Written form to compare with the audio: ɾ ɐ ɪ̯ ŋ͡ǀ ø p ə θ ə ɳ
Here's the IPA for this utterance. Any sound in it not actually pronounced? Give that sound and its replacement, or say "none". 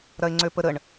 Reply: θ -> ɾ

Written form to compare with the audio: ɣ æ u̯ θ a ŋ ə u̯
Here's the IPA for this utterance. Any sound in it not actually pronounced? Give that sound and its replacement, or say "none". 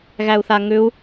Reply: ə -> ʏ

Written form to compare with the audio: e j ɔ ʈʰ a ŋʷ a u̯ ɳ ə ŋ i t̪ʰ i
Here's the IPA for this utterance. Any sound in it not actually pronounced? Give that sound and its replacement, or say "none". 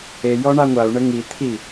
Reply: ʈʰ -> ɳ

